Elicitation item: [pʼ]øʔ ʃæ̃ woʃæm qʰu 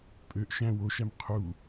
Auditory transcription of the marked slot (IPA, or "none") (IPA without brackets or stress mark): pʼ